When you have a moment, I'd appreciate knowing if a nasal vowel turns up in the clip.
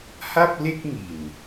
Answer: no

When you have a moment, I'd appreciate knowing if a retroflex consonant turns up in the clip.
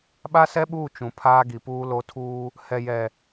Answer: no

